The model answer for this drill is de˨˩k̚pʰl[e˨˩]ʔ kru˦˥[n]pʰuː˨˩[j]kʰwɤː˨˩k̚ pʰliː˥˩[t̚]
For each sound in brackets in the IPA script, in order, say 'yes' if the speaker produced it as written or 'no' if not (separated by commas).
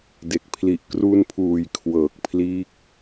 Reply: no, yes, yes, no